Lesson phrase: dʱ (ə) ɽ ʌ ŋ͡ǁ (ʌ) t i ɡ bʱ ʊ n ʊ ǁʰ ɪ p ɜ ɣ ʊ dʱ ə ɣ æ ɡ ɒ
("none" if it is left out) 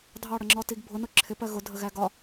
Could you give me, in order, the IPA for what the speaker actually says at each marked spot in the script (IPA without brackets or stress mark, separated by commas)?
ɑ, ɔ